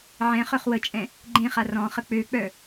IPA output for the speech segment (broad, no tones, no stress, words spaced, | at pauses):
ʕɛ̃ χœχwət͡ʃʼɛ̃ | ɡ͡ǃẽχa rɔ̃χə k͡pøk͡pœ